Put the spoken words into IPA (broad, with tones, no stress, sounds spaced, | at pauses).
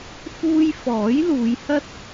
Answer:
f uː˥ j f ɔː˨˥ j l uː˨˧ j h ɐ˥ t̚